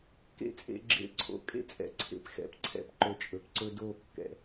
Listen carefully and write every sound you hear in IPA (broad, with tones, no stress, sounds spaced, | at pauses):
k ḛ˦ t͡sʼ ḛ˧ ɡ͡ǁ ḛ˧ ǀʰ o̰˧ kʼ ḛ˦ t͡sʼ ɛ̰˨ ǀʰ ḛ˨ p x ɛ̰˨ p ǀʰ ɛ̰˦ p ǃ ɵ˧ t͡ʃʼ ɵ˨ p ǀ ɵ˦ d o˦˨ kː ɛ̰˨